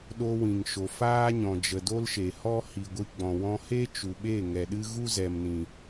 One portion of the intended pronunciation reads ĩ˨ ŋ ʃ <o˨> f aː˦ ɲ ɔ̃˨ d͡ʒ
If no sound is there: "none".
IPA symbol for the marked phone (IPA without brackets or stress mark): o˨